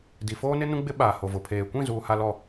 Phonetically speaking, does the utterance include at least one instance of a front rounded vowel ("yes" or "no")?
no